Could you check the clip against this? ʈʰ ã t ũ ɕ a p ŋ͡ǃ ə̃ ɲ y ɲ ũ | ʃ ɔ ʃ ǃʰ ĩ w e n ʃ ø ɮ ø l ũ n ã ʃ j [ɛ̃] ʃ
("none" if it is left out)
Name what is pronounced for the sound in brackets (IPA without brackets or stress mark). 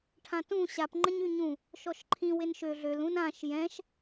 ɛ̃